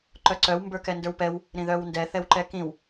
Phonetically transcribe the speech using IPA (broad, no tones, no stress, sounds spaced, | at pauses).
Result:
ǃ œ ǀ œ w m b ə˞ k ɛ n d ə˞ w p ɛ w | ɾ ĩ ð œ w n d ɛ θ ɛ w ǃ ɛ k ĩ w